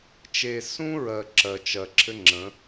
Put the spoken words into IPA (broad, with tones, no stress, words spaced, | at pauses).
t͡ʃe˨sũ˦ɹɜ˨ ǁɜ˨t͡ʃɜ˨ǁʰɘ˦ŋ͡ǁə̃˨˦